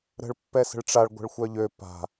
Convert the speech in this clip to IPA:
ɾ ə̤ ɭ pː ɛ s ə̤ ɭ ʈ͡ʂ a ɭ ɡʷ ə̤ ɭ xʷ œ ʎ ø p a̤

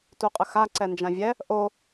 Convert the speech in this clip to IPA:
t u qʼ ə x a ǀ ɛ n d͡ʒ ã vʲ ɛ | ʔ o

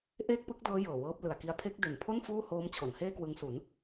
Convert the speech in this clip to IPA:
ʔ eː˥˩ k̚ p ɯ˦˥ k̚ d ɤː˦˥ j ɤː˨˩ w ɤː˦˥ p̚ l ɯ˨˩ a̯ k i˧ a̯ pʰ e˦˥ k̚ d e˨˩ n pʰ o˥˩ n f uː˥˩ h oː˦˥ m t͡ɕʰ o˩˦ n h eː˥˩ k w ɯ˧ ŋ s u˩˦ n

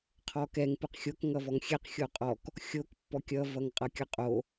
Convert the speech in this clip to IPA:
qʰ ɔ k ɛ ŋ p ɨ q xʲ o k ŋ ʌ v ɔ ŋ xʲ ɛ q xʲ o qʼ ɔ k | xʲ o k pː ɔ kʲ ʌ v ʌ ŋ qʼ ʌ kʲ ʌ qʼ o

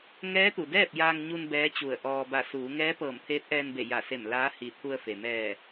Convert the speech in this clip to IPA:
ŋ ɛː˧˥ t̪ u˩ d ɛː˥˨ p̚ j aː˧ ŋ ɲ u˧ n b ɛː˧˥ t͡ɕ u˧˩ ə̯ ʔ ɔː˧ b a˧˩ s uː˩˧ ŋ ɛː˧˥ p ɤː˧˩ m t̪ʰ eː˧˥ t̚ ʔ ɛː˧ n b e˧˩ j a˧˩ s e˧˩ m l aː˧˥ h i˧˩ t̪ʰ u˧ ə̯ f e˩ m ɛː˧˩

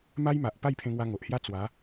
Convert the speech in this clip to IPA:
m a˦ j m a˨ ʔ p a˥˧ j pʰ ẽ˧ ŋ w a˧ ŋ o˨ ʔ h j a˦ t͡s w a˨˦

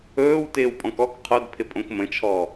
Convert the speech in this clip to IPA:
ɵː w t ɪː w pʼ ɔ̃ k ɔ k qʰ o d pʰ ɪ pʼ õ k m ə̃ t͡ʃʰ ɔ

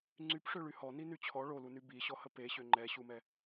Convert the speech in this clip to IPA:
ŋ͡ǀ y p ʂ ø ɭ y h ɔ n i n y t͡ɕʰ ɔ ɭ o l u n y b i ɕ ɔ h ə p e ɕ ø ŋ͡ǃ ɛ ɕ u m ɛ

